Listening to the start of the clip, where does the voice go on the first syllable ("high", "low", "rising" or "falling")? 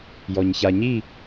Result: low